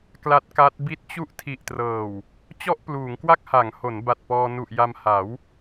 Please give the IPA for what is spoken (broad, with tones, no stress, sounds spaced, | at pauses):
k l a˦˥ t̚ k a˦˥ t̚ b i˦˥ t̚ t͡ɕ u˥˩ ʔ tʰ i˨˩ ʔ t r ɤː˨˩ w | t͡ɕ ɔ˥˩ ʔ p l uː˩˦ ŋ k w a˥˩ k̚ h a˩˦ ŋ h o˩˦ n b a˨˩ t̚ p ɔː˧ n u˨˩ ʔ j a˧ m h a˩˦ w